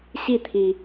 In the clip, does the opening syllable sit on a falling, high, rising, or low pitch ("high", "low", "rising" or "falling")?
falling